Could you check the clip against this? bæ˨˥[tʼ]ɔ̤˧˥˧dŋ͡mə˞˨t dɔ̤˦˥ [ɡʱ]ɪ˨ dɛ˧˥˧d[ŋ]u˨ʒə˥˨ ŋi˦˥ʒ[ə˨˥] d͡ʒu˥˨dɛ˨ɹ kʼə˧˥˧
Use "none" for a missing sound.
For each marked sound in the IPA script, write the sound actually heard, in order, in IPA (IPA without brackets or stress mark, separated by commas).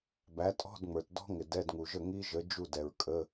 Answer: tʼ, ŋ, ŋ, ə˨˥